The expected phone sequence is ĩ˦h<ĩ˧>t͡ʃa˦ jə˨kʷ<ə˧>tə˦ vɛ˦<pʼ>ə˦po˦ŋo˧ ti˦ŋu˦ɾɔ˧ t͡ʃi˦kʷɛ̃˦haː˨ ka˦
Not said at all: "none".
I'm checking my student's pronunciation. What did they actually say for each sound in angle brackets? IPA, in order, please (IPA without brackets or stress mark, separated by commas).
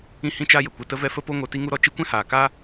ĩ˦, ə˧, f